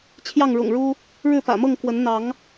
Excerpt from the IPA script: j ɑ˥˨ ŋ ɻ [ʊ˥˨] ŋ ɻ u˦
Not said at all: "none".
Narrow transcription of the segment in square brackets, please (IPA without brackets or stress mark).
ʊ̰˨˩